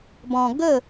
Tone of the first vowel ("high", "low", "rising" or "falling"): low